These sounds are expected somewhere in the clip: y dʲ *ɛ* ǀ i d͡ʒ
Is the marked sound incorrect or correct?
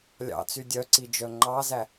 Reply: incorrect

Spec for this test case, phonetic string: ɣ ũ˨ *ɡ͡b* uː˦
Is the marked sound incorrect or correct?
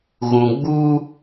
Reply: correct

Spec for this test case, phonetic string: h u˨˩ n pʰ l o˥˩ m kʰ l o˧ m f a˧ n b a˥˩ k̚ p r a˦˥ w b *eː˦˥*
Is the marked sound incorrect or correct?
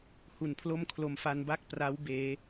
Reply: correct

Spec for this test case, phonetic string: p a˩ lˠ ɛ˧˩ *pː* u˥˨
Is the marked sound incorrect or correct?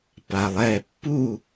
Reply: correct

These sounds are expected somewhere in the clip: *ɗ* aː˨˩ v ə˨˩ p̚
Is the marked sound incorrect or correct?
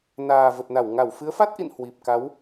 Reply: incorrect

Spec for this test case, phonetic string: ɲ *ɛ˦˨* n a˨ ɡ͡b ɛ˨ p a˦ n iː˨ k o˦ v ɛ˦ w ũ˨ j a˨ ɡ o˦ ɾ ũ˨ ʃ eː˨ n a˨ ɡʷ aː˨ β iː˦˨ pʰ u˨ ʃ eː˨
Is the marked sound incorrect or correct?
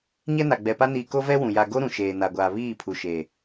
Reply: incorrect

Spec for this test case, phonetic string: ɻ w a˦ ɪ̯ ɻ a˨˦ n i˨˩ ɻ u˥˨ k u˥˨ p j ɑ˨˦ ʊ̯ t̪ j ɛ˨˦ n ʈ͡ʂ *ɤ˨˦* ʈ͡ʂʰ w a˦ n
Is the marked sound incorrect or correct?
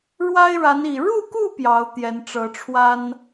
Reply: correct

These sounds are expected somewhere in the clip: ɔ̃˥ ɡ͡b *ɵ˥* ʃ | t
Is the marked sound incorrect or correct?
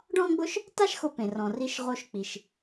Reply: incorrect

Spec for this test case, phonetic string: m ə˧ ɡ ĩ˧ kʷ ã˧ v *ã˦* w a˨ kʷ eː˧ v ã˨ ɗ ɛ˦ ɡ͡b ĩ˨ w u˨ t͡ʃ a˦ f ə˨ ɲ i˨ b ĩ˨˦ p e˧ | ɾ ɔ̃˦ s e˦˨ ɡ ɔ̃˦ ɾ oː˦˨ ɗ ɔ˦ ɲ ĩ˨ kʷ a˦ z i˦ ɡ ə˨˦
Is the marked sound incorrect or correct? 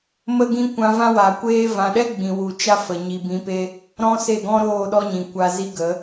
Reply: correct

